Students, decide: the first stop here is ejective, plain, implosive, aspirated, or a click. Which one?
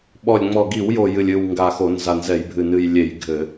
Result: implosive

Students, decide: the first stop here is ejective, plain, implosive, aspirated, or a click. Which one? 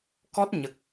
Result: plain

